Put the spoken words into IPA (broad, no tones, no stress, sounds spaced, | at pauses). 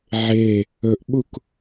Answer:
ʕ e | ɵ ʔ ɓ u k